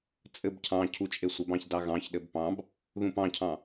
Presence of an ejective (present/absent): present